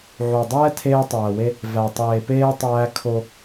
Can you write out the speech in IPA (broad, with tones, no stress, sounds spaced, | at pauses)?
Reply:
ʕ o˨ dˤ ɛː˦ tʰ eː˦ tˤ æː˨ w e˦ | v æ˨ tˤ eː˨ p eː˦ tˤ æː˦ kʰ o˦